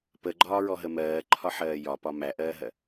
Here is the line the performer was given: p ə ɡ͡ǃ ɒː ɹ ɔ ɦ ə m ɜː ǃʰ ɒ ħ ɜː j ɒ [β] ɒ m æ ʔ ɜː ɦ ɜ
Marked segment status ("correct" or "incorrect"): incorrect